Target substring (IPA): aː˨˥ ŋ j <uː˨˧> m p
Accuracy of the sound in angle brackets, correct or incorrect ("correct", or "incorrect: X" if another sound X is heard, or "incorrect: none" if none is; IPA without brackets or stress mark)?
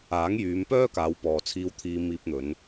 incorrect: yː˨˧